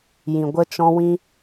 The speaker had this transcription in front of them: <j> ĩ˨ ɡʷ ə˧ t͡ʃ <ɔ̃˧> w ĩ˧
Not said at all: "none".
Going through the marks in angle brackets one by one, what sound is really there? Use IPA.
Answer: j, ɔ̃˧

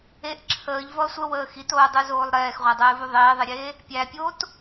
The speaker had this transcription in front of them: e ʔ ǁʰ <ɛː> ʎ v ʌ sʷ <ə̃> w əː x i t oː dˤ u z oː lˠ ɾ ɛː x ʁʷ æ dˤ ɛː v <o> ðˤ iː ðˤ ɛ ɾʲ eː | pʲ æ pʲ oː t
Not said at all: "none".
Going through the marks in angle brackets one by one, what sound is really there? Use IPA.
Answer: əː, ə, u

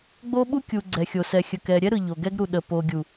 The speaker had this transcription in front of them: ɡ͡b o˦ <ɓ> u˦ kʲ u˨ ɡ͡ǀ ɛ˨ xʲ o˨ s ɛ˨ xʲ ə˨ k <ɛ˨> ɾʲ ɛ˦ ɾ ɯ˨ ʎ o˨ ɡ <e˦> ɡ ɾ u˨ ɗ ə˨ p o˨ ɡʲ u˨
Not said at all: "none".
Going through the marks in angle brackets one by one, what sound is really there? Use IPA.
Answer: ɓ, ɛ˨, ɛ˦

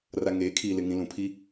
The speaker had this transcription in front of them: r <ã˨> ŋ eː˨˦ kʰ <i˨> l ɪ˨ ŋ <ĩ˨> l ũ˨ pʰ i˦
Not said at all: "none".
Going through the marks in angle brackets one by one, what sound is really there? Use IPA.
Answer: a˨, iː˨, ĩ˨

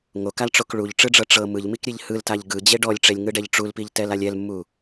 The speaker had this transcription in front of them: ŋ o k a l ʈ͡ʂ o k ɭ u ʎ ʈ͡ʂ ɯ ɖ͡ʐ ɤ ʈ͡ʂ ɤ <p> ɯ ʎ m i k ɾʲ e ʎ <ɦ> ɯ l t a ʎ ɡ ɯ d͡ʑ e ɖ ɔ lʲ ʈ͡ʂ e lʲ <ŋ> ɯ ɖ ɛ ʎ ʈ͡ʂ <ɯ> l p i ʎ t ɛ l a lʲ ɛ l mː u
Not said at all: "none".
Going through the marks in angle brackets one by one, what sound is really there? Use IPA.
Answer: m, h, ŋ, u

